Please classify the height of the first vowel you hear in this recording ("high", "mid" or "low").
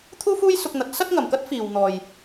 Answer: high